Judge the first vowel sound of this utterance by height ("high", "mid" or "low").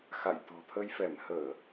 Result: low